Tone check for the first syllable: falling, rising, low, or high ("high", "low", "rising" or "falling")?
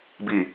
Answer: low